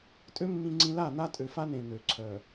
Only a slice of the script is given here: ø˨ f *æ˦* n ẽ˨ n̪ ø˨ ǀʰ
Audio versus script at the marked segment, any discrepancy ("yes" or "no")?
yes